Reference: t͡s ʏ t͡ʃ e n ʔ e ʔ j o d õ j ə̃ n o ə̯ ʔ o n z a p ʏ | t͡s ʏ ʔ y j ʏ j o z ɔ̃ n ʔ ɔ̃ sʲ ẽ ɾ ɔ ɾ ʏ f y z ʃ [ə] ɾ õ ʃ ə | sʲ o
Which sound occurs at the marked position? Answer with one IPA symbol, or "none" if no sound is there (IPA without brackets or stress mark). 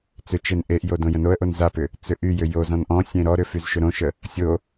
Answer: ʏ